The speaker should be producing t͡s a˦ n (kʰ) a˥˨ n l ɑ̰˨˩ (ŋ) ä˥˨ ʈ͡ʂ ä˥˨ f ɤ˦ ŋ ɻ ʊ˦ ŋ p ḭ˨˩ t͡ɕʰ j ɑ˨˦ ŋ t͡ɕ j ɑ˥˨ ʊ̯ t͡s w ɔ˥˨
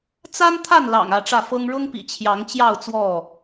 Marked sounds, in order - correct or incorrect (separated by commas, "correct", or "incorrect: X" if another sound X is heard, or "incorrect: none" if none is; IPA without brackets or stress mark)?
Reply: incorrect: t̪ʰ, correct